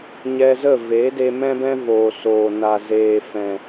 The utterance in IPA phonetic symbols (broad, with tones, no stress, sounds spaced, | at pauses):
ɲ ɛ˧ z ə˦˨ v e˨˦ d e˧ m ɛ̃˦ b ɛ̃˦ v oː˨ s oː˨ n a˨ z eː˨ f ɛ̃˨